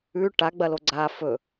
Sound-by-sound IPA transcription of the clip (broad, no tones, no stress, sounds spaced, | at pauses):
ʉ ʈ a ɡ͡b ɐ l o ɡ͡ǀ a f ɵ